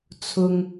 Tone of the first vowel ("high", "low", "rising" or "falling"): low